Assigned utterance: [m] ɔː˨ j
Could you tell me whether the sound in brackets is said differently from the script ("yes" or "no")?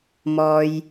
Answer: no